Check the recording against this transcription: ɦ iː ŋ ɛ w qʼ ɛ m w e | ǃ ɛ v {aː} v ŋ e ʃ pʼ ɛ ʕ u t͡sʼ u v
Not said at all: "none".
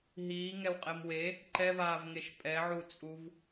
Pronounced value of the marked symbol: aː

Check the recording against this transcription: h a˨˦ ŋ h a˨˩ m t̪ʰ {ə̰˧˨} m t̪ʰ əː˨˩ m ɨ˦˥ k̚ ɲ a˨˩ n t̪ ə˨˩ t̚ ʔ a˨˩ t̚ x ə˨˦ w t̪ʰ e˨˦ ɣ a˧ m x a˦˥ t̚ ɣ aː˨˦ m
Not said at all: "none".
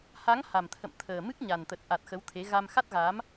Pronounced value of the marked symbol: ə̰˧˨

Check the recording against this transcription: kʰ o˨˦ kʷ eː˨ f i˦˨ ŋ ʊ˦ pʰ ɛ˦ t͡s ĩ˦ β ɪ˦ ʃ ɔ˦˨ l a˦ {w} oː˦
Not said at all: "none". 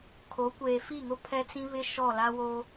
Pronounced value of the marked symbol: w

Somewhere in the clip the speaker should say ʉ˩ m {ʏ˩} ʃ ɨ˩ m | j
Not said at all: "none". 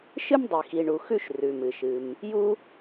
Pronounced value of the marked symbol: ɨ˩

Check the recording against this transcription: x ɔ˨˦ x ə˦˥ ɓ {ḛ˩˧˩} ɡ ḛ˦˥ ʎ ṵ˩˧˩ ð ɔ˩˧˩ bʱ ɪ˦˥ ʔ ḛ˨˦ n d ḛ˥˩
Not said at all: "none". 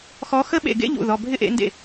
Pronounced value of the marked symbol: ḛ˧˩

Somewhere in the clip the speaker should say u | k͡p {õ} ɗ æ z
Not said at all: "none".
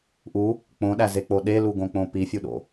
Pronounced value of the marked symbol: õ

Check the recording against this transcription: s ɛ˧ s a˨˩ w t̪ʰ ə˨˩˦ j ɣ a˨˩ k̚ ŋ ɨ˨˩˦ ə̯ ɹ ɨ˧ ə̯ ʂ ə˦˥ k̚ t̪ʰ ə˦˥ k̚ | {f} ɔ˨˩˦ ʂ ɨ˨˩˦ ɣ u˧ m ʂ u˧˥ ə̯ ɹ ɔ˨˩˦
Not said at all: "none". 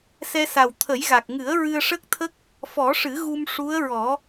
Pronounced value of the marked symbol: f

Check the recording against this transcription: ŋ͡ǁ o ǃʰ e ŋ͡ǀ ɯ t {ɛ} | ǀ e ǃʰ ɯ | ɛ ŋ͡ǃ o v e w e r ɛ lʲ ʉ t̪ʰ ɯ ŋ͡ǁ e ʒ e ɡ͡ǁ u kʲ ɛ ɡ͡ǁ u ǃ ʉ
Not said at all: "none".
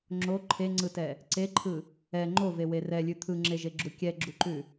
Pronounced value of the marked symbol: ɛ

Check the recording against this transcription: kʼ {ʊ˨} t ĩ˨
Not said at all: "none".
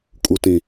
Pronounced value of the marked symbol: u˨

